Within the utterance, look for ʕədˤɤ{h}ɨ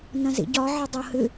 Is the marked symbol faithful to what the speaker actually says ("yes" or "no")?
yes